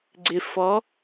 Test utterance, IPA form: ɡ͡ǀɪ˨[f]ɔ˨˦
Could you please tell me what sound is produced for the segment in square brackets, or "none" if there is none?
f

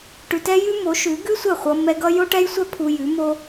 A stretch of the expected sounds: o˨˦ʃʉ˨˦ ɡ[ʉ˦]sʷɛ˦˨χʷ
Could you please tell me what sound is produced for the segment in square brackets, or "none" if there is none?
ʉ˦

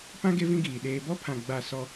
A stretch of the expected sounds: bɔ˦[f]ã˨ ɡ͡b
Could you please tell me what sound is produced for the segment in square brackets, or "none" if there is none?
pʰ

